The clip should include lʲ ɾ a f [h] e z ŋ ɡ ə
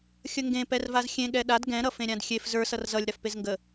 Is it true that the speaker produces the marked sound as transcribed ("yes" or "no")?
no